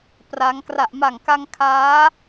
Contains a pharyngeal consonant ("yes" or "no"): no